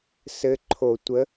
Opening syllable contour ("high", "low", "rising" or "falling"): rising